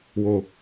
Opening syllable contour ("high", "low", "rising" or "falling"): low